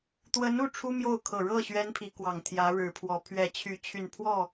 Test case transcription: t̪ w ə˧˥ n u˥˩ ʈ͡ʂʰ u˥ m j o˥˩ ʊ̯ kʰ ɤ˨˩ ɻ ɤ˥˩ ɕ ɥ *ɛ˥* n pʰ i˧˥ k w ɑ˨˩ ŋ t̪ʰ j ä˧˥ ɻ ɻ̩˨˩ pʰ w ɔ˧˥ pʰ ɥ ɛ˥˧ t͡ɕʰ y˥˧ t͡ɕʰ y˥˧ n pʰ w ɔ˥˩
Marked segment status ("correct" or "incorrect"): correct